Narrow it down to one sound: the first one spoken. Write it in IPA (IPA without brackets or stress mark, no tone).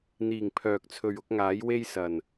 n̪